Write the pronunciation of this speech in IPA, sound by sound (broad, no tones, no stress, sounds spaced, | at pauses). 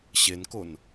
ɕ e n k o n